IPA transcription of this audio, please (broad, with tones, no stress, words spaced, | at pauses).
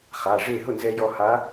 χa˩˧˩ ʐe˥˩ ɦʊ˥˩nzɛ˧ jɔ˧ha˧˥